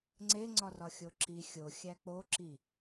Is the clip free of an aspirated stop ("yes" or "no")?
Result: yes